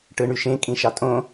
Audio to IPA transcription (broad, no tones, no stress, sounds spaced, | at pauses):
ʈ ɯ ɳ y ʃ ẽ kʼ ĩ ʃ ɑ tʼ õ